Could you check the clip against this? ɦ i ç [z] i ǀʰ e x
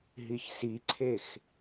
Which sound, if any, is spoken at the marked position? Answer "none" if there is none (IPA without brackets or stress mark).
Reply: s